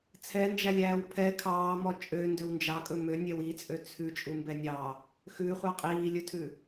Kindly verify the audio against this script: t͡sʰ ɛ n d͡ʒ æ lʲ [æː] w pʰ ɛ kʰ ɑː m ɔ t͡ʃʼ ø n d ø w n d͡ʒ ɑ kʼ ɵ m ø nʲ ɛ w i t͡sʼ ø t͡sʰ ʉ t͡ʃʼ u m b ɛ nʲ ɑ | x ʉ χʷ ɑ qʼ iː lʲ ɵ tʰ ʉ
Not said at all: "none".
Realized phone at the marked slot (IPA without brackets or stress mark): æː